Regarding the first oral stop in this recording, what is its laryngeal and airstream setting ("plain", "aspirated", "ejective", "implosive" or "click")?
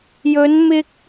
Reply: plain